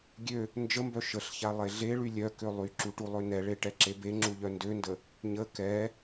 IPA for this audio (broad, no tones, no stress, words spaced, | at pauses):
ɡʲø | nd͡ʒəmbœ ʃəɬça lˠeɮeɭy lʲœkø lˠyǁu ʈulˠønɛɭe ʈɛǁebeŋ͡ǁu ʎœndøndə | ɲə kɛ